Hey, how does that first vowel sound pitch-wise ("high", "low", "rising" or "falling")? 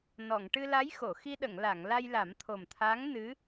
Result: low